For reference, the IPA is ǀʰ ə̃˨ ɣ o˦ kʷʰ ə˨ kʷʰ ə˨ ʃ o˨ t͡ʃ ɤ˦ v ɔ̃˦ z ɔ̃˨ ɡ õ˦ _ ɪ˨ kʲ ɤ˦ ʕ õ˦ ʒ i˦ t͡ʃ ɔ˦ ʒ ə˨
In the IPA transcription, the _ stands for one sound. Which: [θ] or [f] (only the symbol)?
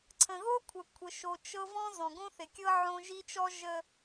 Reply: θ